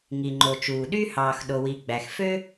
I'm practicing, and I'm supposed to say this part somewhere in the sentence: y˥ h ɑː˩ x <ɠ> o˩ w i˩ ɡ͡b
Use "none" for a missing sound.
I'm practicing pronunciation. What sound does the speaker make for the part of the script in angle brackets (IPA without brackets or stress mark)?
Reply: ɗ